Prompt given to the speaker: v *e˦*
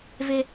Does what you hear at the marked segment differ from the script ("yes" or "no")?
no